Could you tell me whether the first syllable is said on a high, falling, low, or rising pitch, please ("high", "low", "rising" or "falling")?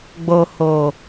low